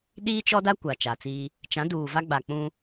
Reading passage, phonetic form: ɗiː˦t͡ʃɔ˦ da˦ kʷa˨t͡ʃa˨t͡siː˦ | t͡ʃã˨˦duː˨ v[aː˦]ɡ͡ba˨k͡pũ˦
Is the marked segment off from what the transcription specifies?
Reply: yes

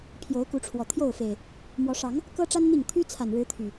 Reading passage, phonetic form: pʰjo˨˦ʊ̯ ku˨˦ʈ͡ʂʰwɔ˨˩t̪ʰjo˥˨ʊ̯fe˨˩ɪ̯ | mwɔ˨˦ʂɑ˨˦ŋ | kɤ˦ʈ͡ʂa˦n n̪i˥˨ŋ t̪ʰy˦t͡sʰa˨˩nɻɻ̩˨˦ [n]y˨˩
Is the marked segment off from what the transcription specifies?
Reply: yes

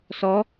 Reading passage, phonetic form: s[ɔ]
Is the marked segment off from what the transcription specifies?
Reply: no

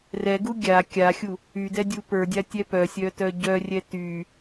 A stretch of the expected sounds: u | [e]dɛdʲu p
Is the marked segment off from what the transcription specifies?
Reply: yes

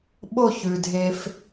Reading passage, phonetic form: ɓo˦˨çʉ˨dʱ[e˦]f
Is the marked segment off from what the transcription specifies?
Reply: no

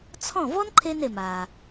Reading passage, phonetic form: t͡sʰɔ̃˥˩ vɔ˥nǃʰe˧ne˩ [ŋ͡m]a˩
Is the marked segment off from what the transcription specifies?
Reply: yes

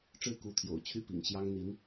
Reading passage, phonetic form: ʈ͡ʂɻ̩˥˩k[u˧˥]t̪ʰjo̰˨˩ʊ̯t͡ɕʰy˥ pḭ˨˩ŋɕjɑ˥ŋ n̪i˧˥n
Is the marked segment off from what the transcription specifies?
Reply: no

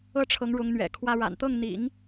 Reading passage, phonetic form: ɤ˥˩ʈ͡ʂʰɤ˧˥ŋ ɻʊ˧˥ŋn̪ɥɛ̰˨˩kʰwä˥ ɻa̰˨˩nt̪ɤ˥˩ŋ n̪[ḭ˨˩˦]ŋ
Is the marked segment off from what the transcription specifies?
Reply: no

